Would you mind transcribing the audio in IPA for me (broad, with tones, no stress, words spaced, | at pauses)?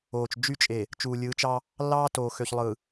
oː˨t͡ʃd͡ʒy˦t͡ʃʼe˨ | t͡ʃuː˨lʲɯː˨˦t͡ʃɑ˦ | lːɑː˦toː˨xø˨çlˠɯ˨